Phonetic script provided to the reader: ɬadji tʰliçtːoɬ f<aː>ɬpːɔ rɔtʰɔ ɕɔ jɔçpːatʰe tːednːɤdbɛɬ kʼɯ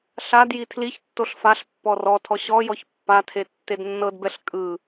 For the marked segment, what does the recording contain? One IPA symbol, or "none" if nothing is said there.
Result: a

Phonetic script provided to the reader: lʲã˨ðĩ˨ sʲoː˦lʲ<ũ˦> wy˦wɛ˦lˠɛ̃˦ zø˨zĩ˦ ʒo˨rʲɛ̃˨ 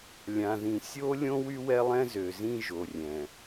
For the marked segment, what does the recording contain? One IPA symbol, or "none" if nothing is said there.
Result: õ˦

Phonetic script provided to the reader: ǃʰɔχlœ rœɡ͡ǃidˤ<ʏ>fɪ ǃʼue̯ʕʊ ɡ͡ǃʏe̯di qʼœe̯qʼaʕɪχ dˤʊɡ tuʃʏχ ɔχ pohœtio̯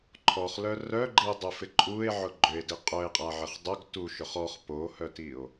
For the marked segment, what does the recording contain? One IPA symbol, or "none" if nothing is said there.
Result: ʏ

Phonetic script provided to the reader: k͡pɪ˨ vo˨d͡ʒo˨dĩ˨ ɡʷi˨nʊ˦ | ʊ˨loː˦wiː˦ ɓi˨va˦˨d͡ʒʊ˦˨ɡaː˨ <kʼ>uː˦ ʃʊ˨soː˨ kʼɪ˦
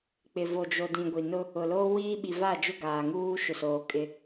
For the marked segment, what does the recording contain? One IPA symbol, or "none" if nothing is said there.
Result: ŋ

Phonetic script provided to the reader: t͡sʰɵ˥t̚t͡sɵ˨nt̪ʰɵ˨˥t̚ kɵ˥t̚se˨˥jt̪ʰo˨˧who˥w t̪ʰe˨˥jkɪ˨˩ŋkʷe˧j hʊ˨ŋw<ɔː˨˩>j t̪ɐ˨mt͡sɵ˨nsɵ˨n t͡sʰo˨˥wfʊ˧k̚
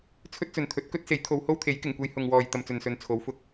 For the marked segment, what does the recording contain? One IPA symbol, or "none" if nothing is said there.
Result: ɔː˨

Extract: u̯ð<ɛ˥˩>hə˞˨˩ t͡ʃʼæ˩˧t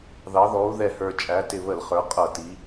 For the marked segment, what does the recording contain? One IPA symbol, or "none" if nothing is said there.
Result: ɛ˨˩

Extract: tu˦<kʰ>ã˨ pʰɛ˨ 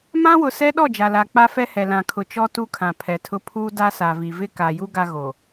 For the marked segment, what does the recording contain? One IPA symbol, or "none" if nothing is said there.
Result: kʰ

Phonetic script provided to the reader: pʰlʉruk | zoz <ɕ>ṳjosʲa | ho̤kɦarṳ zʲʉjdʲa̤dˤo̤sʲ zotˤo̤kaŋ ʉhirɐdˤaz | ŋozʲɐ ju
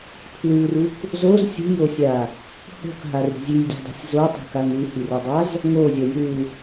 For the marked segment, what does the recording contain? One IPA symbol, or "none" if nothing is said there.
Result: sʲ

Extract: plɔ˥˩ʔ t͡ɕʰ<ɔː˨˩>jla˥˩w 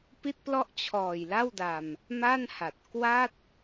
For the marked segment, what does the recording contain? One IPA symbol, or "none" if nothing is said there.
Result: ɔː˨˩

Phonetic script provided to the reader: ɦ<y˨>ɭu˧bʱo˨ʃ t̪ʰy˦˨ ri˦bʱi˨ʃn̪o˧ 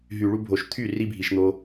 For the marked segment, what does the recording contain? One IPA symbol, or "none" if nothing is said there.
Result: y˨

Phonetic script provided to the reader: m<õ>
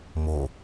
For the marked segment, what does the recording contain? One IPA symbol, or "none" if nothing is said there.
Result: o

